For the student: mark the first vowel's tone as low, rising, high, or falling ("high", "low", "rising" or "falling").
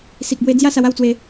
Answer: low